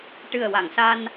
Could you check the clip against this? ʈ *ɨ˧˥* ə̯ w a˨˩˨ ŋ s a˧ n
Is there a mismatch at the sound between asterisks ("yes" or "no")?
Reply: yes